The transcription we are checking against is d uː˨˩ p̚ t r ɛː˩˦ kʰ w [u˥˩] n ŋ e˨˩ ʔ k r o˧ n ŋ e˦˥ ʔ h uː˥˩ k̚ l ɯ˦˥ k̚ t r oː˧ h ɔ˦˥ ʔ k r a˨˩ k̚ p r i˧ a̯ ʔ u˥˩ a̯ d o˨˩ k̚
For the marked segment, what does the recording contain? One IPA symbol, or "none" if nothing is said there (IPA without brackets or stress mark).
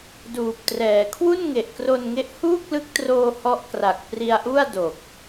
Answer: u˥˩